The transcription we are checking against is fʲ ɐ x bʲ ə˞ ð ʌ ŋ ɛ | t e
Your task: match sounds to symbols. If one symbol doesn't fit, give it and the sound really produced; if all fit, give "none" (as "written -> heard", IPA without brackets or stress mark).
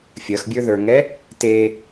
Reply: ʌ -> ə˞